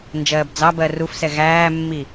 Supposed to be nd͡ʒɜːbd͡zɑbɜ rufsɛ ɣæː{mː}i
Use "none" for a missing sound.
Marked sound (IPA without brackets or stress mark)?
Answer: mː